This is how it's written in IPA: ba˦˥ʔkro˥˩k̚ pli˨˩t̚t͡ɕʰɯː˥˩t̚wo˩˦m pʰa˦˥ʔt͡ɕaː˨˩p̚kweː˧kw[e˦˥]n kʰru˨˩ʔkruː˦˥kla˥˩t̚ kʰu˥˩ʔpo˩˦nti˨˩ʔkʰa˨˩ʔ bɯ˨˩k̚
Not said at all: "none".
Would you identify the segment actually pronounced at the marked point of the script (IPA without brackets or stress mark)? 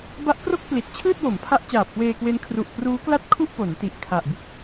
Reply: e˦˥